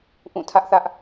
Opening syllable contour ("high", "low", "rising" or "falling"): falling